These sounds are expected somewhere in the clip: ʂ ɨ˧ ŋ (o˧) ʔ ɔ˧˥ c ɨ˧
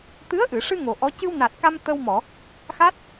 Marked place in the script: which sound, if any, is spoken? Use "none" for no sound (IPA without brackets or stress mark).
o˨˩